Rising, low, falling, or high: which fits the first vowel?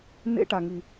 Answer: high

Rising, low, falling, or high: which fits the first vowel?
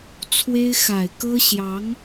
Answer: high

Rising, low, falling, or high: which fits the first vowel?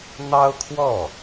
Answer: high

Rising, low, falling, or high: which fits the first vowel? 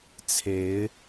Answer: rising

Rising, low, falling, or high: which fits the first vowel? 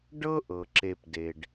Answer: high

